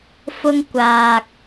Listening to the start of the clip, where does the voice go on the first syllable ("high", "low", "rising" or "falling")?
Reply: high